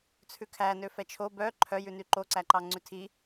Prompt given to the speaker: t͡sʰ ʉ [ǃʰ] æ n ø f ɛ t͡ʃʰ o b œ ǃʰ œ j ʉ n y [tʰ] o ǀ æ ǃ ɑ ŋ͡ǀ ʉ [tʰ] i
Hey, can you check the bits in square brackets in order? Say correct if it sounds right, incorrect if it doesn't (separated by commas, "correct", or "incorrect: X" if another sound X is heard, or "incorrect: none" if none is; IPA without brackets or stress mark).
incorrect: kʰ, incorrect: ǃ, correct